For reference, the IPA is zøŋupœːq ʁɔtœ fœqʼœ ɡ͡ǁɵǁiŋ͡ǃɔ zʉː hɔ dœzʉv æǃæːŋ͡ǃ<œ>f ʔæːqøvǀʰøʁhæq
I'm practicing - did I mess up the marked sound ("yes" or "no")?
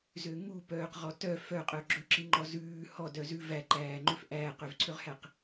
yes